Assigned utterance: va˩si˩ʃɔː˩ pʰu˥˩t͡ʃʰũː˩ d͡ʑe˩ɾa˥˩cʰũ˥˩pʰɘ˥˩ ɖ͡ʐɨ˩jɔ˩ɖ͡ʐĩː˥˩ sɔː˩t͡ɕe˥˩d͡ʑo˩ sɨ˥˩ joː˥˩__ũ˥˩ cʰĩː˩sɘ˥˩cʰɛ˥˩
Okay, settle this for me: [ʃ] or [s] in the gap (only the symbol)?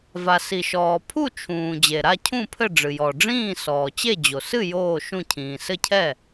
ʃ